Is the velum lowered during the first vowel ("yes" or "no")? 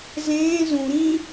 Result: yes